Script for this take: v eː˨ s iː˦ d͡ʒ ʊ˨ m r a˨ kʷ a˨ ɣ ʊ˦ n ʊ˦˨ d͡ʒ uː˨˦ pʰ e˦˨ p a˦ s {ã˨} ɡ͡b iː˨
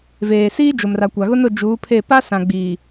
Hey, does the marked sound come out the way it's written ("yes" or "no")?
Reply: yes